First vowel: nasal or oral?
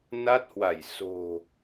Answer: oral